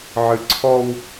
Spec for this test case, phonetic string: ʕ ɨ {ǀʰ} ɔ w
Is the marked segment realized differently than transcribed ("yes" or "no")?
no